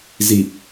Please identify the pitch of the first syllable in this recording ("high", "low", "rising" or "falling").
low